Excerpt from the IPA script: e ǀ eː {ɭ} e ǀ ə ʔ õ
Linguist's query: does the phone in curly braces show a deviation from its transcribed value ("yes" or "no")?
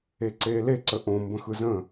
yes